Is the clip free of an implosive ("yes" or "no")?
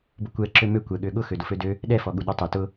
no